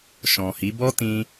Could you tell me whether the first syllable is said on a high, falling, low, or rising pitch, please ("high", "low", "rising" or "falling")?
low